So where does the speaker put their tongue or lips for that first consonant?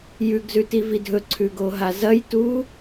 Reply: palate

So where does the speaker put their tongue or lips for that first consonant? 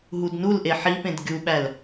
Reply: throat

